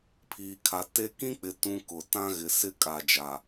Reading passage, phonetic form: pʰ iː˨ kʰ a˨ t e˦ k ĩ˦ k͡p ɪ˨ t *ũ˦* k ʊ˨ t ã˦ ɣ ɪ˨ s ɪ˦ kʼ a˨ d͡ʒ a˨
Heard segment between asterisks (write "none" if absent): ũ˦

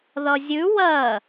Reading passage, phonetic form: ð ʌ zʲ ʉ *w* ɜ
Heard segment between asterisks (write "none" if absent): w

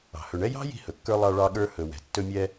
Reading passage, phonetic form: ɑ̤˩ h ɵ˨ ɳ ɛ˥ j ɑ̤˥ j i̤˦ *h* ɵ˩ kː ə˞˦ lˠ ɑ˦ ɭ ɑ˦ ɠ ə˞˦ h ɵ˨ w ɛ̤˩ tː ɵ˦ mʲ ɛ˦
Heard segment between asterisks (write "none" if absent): h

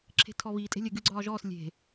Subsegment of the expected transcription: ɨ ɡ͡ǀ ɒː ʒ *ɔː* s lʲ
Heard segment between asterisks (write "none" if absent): ɔː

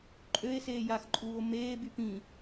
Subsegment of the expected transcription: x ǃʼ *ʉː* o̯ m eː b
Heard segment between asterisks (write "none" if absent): uː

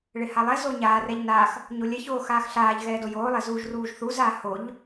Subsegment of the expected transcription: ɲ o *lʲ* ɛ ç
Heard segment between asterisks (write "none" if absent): lʲ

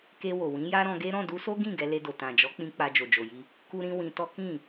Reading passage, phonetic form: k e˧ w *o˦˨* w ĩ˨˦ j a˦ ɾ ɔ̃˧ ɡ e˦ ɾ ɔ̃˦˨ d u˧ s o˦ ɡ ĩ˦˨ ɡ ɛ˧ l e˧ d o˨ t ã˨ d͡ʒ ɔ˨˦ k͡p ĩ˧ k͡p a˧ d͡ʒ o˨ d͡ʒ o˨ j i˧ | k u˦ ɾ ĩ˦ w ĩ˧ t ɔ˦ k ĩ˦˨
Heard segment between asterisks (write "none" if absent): o˨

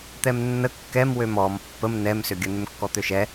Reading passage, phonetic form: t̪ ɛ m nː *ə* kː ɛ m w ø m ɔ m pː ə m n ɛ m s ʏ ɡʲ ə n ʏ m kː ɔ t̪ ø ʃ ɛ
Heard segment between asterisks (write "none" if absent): ə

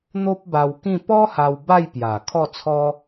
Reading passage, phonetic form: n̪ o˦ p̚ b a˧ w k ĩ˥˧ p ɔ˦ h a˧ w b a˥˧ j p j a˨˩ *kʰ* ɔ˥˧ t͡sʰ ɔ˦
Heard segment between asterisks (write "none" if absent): kʰ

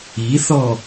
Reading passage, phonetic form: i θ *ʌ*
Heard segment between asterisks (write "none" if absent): ɔ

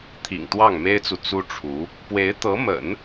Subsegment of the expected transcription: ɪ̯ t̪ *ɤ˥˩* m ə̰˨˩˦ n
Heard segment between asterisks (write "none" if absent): ɤ˧˥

